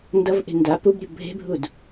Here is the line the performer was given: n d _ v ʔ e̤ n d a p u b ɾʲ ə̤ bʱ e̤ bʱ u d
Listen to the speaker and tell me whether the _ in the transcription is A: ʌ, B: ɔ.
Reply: A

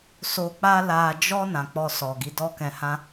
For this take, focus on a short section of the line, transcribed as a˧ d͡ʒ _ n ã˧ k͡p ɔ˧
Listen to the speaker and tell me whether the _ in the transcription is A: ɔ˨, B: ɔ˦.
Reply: B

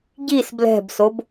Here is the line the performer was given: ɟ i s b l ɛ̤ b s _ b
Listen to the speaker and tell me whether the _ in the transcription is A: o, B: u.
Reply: A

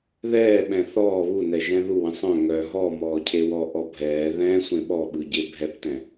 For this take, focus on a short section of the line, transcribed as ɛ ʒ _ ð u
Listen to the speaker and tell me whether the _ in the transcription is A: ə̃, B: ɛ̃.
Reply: B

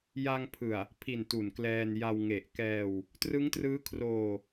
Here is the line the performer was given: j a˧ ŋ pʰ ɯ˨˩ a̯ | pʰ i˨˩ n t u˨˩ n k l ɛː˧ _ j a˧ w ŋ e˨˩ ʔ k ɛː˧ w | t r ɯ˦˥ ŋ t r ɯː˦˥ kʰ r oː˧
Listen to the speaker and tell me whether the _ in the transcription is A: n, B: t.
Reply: A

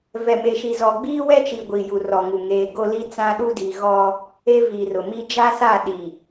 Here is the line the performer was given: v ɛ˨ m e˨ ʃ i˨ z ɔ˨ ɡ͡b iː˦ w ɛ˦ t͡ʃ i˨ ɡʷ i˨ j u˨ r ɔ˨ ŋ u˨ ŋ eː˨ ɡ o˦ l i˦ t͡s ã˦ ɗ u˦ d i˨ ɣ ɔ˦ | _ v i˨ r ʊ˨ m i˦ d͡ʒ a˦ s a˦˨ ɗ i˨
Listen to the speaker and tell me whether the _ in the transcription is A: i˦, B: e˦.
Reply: B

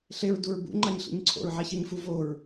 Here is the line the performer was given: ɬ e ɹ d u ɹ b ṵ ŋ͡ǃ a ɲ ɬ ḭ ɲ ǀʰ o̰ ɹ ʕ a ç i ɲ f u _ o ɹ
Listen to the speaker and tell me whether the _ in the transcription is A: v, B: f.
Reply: A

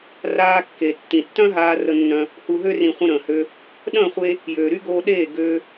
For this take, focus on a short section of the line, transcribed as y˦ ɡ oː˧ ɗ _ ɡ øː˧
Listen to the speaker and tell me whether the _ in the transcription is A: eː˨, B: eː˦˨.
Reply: B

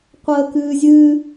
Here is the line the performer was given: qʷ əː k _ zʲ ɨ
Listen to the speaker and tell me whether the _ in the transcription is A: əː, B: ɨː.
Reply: B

